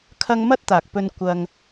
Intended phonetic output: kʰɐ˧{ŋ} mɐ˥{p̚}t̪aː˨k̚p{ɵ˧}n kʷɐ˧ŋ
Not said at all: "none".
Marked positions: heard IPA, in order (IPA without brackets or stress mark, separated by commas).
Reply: ŋ, t̚, ɵ˧